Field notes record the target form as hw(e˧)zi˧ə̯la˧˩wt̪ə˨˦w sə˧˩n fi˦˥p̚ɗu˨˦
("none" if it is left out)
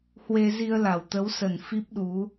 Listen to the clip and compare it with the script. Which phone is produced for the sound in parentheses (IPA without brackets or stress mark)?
e˧